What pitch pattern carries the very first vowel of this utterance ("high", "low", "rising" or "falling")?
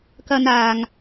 high